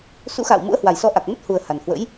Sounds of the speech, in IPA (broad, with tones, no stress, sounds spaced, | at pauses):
s ṵ˧˥ x a̰ː˧˨ w m ṵ˧˥ ə̯ h w a˨˩ j s ɔ˨˦ ʔ a˨˩ k̚ m ə˦˥ t̚ h u˨˩ ə̯ h a˨˩ n h w ə̰˧˥ j